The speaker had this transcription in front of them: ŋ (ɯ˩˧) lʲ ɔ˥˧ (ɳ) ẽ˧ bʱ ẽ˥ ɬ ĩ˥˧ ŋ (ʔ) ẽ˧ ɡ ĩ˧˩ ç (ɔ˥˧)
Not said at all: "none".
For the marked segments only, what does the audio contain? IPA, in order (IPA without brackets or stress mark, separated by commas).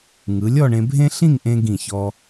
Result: ɯ˩˧, ɳ, ʔ, ɔ˧